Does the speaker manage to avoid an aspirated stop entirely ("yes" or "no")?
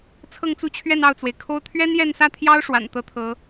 no